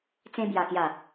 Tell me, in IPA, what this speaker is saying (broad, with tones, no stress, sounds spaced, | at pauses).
t͡s ẽ˧ b j a˨˩ k j a˨˩